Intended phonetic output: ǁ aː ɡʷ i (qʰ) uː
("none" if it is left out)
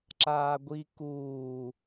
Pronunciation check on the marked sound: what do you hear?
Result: k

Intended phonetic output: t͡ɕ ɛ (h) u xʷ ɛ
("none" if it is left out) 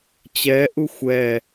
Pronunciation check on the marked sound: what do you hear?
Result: ʔ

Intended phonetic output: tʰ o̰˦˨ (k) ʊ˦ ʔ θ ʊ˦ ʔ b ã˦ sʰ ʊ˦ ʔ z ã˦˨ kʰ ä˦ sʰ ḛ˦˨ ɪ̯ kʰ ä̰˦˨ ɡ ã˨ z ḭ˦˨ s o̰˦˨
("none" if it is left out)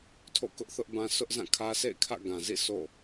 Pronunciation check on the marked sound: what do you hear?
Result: k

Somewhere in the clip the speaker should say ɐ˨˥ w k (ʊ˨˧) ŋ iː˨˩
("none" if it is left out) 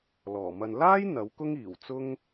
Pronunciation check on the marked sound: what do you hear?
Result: ʊ˥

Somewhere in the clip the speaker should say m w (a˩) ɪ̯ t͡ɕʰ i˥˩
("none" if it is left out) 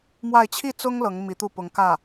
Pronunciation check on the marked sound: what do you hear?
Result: a˥˧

